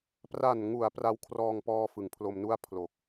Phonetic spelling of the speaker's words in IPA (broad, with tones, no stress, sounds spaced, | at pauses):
p r a˨˩ n ŋ u˩˦ a̯ p r a˦˥ w kʰ r ɔː˧ ŋ p ɔː˧ f ɯ˩˦ ŋ pʰ l o˧ m n u˥˩ a̯ pʰ l o˨˩ k̚